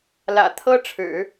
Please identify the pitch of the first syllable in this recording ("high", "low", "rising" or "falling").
low